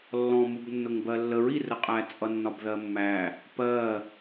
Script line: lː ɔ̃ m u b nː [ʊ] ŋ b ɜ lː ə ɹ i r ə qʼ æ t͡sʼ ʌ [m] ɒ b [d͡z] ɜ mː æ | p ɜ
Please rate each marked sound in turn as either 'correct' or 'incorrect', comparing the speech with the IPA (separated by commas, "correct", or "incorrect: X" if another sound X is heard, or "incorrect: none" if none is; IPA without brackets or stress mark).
correct, incorrect: nː, incorrect: ð